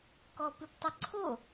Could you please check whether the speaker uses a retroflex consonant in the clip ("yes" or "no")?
no